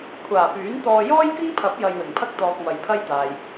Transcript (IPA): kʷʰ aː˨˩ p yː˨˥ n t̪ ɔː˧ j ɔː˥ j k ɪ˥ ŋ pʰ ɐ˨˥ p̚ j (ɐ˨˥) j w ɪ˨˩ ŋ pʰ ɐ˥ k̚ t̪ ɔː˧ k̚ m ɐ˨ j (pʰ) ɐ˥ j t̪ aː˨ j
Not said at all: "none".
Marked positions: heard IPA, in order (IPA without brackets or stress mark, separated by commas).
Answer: ɐ˧, pʰ